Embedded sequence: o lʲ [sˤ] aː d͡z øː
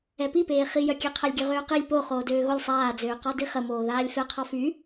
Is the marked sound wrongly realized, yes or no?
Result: no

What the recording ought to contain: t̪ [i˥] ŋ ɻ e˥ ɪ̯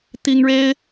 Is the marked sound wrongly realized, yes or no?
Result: no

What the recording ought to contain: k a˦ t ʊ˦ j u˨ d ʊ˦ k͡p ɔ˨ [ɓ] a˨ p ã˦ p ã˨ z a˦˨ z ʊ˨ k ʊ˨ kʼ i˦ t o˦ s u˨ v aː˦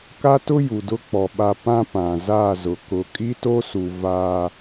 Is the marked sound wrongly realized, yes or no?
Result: no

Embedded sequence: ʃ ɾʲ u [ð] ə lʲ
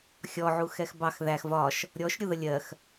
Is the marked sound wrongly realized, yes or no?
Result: no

